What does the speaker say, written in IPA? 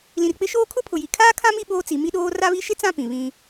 l ĩ˨ r k͡p ɪ˦ ʃ oː˦ kʰ ʊ˦ pʰ ʊ˨ j i˨ kʰ aː˦ kʰ ã˦ m i˦ ɓ oː˦ t͡s i˨˦ m i˦ ɗ oː˦ r a˦ β i˦ ʃ ɪ˦ t͡s ã˦˨ p ĩ˨ β ĩ˦

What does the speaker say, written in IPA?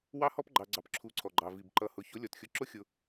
w ɑ˦ h ɔ˦ p ɡ͡ǃ ɑ˨ ɡ͡ǀ ɑ˨ p ǁʰ u˨˦ ǀʰ ɔ˨ ɡ͡ǃ ɑ˨ v i˨ b ǃ ʌ˨ h ʊ˨ ç ʊ˨˦ lʲ ɔ˨ t xʲ ʊ˧ ǁ ʊ˦ xʲ ʊ˧

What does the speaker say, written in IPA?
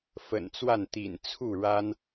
f ə̰˨˩ n t͡s w a˥˨ n t̪ ḭ˨˩ n t͡sʰ u˥˨ ɻ a˦ n

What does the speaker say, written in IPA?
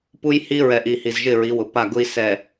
p u˦ j h i˦ ɹ ɛ˨ ʔ i˨ h i˨ z ʒ ɪ˦˨ ɹ i˨˦ w ʊ˨ p a˦˨ ɡ ʊ˦ i̯ s ɛ˨

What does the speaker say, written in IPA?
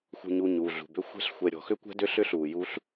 x ṳ˨ ɲ u˨ ɲ uː˨ ɮ ṳ˨ b ʏ˦˥ xʷ ɛ̤˦˥ ɬ xʷ ɛ˨ ɾʲ ɔ̤˨ x ʏ˦˥ kʷ ɛ̤˦˥ d ʏ˦˥ ɬ ʏ˦˥ ɬ uː˨ j u˦˥ ɬ

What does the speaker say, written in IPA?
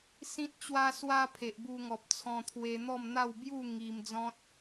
s ĩ˦ t̚ t͡ɕ w a˦ s w a˦ pʰ e˨ ʔ b u˧ ŋ ɔ˨ p̚ t͡sʰ ɔ̃˧ t̪ʰ w e˧ n̪ ɔ˥˧ m n̪ a˥˧ w b j u˥˧ ŋ i˧ m d͡z ɔ̃˦ t̚

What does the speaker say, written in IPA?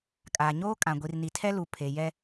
kʼ aː˨ ɲ oː˦ kʼ ã˨ ɡʷ i˨ r n i˨ tʰ ɛ˦ l u˨ pʰ e˨ j ɛ˦

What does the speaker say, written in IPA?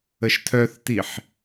ə ʃ tʰ œ θ t i ħ

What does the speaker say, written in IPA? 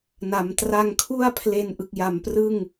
n a˩˦ m t r a˧ ŋ kʰ u˥˩ a̯ pʰ l e˧ n ʔ ɯ˨˩ k̚ j a˩˦ m p r ɯ˥˩ ŋ

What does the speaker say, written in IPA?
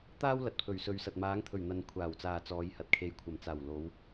t̪ aː˥ w l ɐ˨ t̚ pʰ ɵ˨˩ ɥ s ɵ˨ ɥ s ɐ˨ t̚ m aː˨˧ ŋ t̪ʰ ɵ˨˩ ɥ n̪ ɐ˨ n kʷʰ aː˨˩ w t͡s aː˨ t͡s ɔː˨˧ j h ɐ˨ t̚ kʰ e˨˧ j kʷʰ ɐ˨˩ m t͡s aː˨˩ w l o˨˧ w

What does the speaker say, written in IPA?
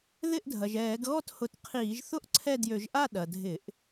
ð ɪ˥˨ ʔ dʱ ɐ˩ ʒ ɛː˧˩˧ ɡ ɣ ɔ˥˨ t h ʊ˧˩˧ t qʰ iː˧˩˧ ʒ θ ʊ˥˨ ʔ ǀʰ ɛ˥˨ d j ø˧˩˧ ʒ ʔ a˥˨ ɗ ɐ˩ dʱ ɪ˧˩˧ ʔ

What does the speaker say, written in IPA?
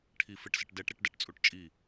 ʈʰ i f ɪ ʈ s ɪ ʈ d ɛ ʈ ɾ e ʈ d ɛ ʈ t͡sʼ u ʈ t͡ʃʼ i

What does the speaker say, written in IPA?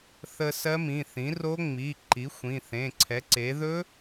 θ ə˧ s ɜ˦˥ m ĩ˩˧˩ θ ĩ˩˥ r o˦˥ ŋ͡m i˩˧˩ ǃ i˩˥ xʷ ĩ˩˧˩ θ ẽ˩˧˩ ǀʰ ɛ˩˥ ǀ e˩˥ ð ɵ˦˥

